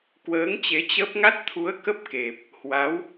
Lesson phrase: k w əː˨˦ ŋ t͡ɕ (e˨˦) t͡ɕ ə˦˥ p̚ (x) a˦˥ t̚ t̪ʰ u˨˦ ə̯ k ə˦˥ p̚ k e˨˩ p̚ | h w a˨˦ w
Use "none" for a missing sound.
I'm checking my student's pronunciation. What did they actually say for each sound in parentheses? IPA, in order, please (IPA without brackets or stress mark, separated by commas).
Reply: e˨˦, ŋ